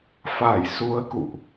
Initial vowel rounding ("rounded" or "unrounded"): unrounded